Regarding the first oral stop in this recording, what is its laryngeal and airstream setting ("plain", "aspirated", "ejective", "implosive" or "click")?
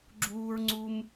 click